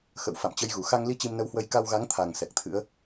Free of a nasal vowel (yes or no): yes